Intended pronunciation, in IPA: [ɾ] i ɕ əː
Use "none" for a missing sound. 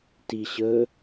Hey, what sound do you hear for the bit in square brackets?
t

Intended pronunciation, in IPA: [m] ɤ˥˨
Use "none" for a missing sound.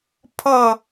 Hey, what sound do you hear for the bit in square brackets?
pʰ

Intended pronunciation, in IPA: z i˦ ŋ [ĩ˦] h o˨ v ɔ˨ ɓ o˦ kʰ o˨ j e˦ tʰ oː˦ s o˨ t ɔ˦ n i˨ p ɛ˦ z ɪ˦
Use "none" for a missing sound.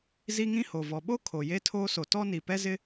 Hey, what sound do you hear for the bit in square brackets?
ĩ˦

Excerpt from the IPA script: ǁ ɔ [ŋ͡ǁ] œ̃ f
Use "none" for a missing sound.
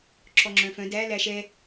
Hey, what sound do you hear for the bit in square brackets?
ŋ͡ǁ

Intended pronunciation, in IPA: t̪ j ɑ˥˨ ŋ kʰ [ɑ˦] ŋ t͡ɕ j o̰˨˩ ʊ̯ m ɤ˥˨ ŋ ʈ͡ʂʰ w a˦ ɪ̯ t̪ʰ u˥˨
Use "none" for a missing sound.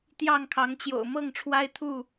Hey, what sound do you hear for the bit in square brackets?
ɑ˨˦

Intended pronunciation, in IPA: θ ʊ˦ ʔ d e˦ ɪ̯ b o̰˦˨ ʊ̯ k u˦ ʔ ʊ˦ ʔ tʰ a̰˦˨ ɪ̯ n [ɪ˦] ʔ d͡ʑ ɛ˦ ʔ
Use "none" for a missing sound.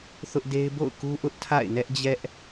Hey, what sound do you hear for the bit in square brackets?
ɛ˦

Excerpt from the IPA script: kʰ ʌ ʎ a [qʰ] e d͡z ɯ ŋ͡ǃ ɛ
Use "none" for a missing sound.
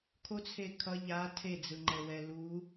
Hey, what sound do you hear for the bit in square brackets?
tʰ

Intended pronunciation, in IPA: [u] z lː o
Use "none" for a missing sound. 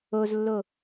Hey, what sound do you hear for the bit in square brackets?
o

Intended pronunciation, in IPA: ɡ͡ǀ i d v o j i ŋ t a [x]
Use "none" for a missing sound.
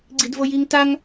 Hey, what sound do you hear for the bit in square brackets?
ŋ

